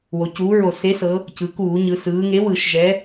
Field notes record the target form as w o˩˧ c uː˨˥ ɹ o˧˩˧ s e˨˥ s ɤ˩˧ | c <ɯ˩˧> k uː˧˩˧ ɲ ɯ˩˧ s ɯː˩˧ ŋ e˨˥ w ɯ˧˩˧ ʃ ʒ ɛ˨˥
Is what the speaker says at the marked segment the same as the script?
yes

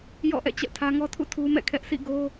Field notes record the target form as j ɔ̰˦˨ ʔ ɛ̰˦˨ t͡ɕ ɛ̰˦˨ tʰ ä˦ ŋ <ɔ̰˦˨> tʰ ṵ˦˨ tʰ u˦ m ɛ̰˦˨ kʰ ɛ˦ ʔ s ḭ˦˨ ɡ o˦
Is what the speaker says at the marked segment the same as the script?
no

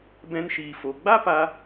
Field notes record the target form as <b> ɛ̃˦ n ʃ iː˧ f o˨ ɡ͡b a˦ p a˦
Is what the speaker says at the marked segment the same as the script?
yes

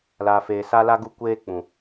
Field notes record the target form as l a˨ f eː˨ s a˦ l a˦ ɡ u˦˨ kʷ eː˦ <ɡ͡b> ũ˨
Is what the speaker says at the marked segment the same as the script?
no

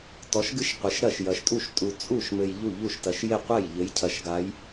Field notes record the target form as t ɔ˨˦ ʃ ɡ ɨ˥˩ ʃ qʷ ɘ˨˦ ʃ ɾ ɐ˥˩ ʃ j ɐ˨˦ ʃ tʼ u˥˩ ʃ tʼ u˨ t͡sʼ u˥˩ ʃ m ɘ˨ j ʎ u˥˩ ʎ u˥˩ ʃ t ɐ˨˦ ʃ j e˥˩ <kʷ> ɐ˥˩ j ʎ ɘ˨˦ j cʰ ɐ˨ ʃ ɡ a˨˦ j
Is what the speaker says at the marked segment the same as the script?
no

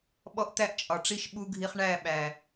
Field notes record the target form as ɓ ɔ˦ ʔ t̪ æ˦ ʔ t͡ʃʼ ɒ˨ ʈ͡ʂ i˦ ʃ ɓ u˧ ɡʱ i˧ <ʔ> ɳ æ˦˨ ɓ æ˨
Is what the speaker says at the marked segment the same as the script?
no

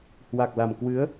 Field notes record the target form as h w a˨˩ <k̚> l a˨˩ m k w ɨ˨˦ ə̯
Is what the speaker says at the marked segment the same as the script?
yes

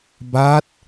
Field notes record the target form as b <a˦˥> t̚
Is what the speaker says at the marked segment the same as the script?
yes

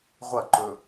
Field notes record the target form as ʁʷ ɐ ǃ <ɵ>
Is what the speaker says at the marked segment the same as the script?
yes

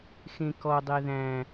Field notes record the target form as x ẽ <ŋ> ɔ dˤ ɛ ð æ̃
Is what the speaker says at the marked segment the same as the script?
no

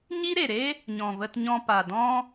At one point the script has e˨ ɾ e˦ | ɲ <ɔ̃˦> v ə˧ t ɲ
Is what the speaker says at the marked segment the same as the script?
no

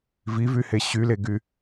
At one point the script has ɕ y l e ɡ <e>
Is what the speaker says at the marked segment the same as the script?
no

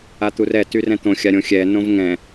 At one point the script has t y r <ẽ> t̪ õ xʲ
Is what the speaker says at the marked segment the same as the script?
no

